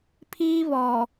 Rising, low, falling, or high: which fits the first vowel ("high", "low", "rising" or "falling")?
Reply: high